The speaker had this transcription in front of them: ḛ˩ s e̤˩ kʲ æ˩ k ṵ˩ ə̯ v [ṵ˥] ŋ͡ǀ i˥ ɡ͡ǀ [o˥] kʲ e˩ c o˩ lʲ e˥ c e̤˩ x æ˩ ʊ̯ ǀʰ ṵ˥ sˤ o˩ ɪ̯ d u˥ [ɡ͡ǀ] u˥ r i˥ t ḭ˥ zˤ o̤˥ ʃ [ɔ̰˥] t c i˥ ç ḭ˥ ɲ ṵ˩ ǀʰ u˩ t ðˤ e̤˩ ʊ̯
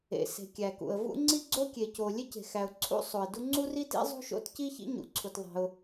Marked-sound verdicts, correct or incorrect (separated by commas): correct, correct, incorrect, incorrect